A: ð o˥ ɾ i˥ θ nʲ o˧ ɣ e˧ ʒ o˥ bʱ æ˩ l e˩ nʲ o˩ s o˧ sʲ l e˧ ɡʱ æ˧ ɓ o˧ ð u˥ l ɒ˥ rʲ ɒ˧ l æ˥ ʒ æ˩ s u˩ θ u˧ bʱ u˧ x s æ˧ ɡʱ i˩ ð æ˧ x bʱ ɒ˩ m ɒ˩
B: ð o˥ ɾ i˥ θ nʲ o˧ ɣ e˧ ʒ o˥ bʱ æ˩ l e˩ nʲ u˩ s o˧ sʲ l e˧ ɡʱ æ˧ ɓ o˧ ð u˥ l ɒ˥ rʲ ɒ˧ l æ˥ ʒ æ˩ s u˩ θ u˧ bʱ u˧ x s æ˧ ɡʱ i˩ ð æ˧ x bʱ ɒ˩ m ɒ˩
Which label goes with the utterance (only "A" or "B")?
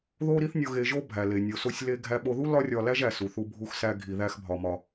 A